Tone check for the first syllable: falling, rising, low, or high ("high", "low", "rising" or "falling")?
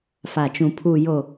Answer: low